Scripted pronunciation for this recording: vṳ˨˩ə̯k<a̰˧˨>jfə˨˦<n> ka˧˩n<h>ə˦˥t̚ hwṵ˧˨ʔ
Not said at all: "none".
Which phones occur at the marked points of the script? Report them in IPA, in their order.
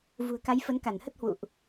a˨˦, n, h

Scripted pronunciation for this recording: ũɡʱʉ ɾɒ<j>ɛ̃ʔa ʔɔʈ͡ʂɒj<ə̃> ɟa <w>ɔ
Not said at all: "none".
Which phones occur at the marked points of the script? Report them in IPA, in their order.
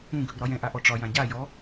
j, ã, j

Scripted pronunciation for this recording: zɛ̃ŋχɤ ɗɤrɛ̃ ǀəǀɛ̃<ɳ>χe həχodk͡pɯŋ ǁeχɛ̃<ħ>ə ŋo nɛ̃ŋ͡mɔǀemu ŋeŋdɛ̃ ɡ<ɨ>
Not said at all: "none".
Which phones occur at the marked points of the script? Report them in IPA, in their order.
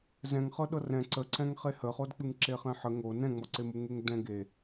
ŋ, ħ, e

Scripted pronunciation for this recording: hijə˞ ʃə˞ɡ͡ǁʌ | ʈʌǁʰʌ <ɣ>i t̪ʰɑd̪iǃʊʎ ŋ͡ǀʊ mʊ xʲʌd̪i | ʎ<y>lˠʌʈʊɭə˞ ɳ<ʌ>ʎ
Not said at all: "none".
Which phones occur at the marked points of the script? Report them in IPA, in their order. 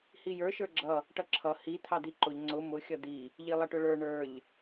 h, i, ə˞

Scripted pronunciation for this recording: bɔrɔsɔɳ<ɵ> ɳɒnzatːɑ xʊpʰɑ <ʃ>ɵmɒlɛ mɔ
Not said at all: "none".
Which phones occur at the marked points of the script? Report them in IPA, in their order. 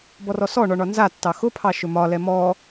ɔ, ʃ

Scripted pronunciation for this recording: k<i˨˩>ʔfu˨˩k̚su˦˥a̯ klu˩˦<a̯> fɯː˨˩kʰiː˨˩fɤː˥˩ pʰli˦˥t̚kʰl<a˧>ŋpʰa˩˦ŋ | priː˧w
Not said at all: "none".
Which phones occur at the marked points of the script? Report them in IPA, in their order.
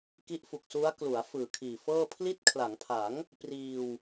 i˦˥, a̯, a˩˦

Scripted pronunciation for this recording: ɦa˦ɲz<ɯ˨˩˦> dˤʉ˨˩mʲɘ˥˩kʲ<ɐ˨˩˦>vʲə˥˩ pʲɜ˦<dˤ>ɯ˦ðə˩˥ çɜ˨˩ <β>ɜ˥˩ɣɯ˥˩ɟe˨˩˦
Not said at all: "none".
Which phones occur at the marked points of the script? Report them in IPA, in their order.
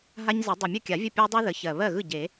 ə˨˩˦, a˨˩˦, dˤ, β

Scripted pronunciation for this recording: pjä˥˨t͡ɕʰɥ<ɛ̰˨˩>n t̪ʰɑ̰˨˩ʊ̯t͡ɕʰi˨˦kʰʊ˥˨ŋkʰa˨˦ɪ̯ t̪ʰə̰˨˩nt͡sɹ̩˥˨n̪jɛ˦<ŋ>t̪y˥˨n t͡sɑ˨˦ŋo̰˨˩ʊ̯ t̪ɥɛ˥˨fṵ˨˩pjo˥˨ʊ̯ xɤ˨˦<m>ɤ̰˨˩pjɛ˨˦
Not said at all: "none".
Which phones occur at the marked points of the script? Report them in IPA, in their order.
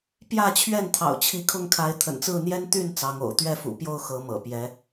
ɛ˥˨, n, m

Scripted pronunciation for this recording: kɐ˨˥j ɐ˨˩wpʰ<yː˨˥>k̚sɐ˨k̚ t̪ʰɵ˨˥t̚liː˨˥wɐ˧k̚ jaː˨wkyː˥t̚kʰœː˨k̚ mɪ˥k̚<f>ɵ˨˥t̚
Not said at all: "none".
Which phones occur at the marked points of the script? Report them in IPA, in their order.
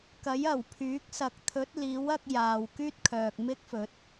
yː˨˥, f

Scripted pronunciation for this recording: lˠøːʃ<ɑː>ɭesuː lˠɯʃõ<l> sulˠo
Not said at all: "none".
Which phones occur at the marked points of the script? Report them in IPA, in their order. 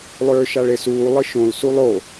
ɑ, l

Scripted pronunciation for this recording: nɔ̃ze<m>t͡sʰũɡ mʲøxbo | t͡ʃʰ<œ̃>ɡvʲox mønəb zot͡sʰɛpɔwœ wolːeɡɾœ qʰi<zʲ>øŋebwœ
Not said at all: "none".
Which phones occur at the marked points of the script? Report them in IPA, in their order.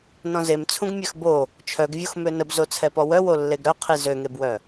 m, œ, z

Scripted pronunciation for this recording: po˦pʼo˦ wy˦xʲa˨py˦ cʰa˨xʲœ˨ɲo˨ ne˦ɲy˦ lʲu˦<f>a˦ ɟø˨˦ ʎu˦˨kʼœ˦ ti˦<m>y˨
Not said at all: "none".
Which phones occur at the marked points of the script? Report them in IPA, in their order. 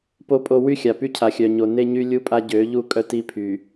pʼ, pʰ

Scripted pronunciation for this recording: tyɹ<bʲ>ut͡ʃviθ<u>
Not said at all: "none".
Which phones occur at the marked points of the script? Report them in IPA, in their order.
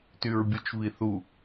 bʲ, u

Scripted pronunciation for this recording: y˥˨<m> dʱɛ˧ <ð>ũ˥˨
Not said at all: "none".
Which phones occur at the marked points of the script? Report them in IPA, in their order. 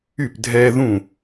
p, ð

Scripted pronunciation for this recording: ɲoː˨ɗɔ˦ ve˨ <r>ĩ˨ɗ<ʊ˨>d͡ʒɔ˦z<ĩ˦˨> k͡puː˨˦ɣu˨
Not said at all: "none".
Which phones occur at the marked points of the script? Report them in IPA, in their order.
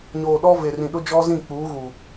r, ʊ˦, ĩ˦˨

